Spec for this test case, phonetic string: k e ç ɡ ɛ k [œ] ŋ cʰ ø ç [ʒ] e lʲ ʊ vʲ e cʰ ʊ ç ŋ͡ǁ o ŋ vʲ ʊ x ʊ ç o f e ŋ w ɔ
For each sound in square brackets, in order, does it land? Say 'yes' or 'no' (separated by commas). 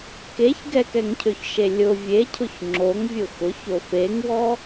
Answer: no, no